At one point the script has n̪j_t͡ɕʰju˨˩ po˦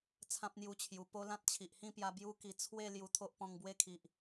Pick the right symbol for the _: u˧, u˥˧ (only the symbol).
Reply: u˧